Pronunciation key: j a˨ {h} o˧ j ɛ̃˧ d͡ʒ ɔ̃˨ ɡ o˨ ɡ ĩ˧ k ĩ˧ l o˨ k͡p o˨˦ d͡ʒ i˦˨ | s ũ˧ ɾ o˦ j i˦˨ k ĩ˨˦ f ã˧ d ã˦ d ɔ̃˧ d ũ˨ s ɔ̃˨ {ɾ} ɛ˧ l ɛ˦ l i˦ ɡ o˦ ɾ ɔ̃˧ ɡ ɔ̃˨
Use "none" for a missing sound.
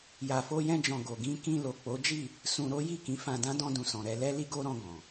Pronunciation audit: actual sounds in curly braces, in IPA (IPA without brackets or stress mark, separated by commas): f, ɾ